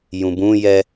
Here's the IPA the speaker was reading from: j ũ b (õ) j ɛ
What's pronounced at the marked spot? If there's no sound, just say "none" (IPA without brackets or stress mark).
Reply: ũ